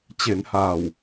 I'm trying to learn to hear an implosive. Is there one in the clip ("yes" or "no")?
no